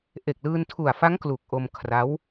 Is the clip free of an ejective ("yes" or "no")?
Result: yes